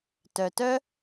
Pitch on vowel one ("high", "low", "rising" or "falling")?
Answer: low